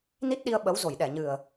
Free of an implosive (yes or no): no